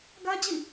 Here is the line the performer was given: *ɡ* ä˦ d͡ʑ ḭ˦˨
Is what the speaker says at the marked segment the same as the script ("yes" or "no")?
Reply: yes